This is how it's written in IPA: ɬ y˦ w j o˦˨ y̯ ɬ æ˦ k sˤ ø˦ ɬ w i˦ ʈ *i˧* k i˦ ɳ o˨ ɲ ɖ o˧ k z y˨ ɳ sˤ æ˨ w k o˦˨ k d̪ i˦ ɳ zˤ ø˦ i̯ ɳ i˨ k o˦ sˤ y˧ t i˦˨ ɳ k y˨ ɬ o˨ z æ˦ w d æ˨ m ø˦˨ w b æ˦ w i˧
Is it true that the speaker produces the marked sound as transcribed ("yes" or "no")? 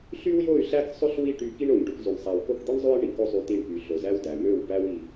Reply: no